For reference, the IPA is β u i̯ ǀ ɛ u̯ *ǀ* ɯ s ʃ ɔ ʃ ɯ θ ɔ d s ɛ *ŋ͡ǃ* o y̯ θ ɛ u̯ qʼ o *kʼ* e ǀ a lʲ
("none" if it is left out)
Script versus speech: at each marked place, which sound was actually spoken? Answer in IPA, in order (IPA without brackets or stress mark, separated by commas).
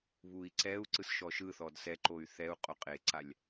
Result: ǀ, ǃ, qʼ